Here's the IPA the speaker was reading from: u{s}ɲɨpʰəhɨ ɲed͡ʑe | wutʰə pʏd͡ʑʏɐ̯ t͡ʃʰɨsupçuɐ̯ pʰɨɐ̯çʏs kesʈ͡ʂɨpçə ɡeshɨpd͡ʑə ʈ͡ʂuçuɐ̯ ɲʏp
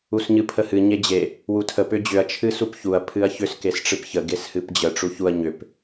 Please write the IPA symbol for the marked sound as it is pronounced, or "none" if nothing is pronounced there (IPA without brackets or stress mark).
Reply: s